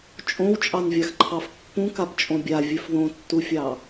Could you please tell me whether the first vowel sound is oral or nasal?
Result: nasal